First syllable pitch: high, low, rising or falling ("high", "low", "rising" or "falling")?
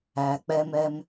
low